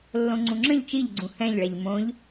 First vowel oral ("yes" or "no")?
no